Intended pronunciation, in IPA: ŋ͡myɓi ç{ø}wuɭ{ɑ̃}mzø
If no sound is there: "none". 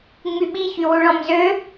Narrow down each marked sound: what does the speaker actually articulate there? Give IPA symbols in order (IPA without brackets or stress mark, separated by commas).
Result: y, ɔ̃